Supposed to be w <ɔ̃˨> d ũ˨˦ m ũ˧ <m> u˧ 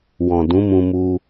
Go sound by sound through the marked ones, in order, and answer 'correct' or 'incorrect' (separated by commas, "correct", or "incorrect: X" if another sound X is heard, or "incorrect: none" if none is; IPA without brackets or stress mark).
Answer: correct, correct